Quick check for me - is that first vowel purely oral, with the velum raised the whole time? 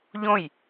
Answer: no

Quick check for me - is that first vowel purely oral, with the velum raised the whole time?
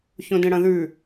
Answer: no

